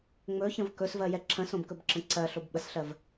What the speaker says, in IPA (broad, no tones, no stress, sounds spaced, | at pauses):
ŋ͡m ɵ ç ə̃ v k ɵ s v ɜ j ɛ ǁʰ ə̃ s õ b k ɵ b ǁ ə̃ ǀ ɜ ɬ o b ɓ ə s ɬ ɜ v